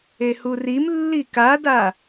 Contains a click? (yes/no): no